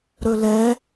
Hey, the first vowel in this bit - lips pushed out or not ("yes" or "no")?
yes